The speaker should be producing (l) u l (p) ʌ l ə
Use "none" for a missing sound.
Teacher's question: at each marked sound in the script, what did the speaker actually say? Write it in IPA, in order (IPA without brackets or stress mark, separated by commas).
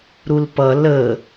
ɾ, p